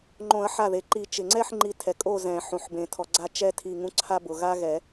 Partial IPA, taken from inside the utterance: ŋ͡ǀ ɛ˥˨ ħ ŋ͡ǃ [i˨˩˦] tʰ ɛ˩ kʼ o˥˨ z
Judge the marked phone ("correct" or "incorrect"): correct